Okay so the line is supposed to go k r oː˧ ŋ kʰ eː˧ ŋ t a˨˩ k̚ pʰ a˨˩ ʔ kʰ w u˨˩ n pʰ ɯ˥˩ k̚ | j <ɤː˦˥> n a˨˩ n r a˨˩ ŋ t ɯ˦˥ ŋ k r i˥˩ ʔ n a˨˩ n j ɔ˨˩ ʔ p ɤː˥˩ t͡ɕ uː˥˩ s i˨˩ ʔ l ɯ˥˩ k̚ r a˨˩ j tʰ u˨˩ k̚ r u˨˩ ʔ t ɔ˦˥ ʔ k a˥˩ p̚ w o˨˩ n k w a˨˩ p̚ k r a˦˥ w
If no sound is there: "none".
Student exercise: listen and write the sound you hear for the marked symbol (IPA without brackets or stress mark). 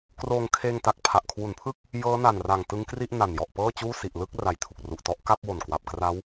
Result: ɤː˦˥